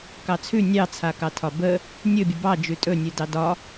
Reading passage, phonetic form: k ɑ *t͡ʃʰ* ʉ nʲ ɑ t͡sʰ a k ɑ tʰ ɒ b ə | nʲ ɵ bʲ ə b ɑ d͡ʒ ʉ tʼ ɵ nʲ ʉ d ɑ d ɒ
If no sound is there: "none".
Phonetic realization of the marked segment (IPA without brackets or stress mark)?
t͡sʰ